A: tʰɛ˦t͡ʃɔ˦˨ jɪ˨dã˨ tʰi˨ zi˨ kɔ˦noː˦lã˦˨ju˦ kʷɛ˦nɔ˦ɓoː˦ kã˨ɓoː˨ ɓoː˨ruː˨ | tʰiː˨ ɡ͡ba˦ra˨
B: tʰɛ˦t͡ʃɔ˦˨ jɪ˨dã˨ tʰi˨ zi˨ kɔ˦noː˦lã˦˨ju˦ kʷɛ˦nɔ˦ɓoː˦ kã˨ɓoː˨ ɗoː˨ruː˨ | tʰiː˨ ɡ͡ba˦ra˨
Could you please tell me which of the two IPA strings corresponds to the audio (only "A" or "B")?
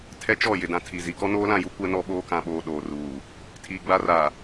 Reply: B